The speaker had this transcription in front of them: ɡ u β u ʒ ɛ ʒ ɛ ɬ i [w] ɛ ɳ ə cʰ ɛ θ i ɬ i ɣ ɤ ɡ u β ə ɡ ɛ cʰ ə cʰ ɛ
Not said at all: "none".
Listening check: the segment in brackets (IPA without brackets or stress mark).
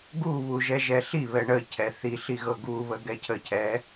β